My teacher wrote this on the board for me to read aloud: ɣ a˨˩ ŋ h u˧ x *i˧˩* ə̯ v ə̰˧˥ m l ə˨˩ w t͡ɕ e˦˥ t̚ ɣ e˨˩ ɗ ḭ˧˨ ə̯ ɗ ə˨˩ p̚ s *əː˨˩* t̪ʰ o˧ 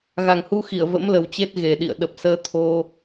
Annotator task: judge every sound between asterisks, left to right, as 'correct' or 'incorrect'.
correct, incorrect: əː˧

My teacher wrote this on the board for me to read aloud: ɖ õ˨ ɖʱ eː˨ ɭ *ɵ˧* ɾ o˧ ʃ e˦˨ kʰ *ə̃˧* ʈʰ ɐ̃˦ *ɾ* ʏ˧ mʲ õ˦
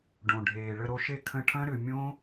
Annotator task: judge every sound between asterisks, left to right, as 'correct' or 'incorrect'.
incorrect: ə˧, correct, correct

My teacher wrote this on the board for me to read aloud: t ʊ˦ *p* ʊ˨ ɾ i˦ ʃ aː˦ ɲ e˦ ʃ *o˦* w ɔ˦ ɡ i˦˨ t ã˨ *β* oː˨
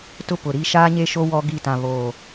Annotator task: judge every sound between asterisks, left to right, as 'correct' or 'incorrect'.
correct, correct, correct

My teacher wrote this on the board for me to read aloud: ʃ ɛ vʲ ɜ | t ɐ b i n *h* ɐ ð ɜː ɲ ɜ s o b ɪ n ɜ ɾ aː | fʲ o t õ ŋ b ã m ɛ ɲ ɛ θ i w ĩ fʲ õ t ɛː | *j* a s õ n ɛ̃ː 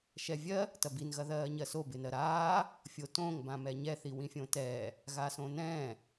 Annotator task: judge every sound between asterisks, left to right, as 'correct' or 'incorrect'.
incorrect: ɣ, incorrect: ɣ

